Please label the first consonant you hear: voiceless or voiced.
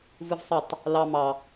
voiced